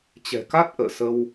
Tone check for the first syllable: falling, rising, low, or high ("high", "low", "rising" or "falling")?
low